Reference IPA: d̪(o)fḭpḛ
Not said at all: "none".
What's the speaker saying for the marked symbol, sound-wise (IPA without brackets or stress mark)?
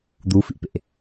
u